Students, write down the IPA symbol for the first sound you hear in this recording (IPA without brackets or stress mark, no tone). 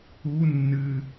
u